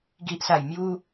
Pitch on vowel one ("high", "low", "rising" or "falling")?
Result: low